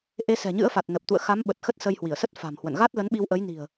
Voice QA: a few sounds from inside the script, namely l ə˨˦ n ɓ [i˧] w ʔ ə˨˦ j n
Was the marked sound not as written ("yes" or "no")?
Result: no